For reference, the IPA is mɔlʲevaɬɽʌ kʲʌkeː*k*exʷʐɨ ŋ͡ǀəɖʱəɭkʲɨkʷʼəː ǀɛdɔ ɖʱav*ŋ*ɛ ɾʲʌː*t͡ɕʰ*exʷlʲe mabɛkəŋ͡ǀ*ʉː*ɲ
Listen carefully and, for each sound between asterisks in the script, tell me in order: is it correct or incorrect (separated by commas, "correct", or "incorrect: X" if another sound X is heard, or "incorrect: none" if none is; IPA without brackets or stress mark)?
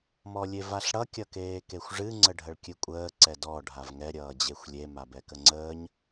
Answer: correct, correct, incorrect: d͡ʑ, incorrect: əː